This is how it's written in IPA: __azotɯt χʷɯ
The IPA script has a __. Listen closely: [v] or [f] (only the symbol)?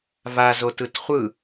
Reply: v